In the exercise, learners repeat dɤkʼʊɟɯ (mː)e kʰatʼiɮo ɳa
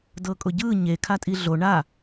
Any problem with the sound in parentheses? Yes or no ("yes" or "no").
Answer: yes